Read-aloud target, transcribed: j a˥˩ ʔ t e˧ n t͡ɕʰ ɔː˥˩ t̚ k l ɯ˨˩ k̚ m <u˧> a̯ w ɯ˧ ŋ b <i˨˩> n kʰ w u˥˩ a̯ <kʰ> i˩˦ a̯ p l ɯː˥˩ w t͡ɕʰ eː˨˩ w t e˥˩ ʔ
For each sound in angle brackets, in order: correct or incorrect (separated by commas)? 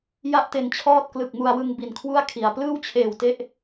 correct, correct, correct